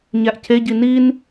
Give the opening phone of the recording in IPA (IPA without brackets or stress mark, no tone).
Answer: ɲ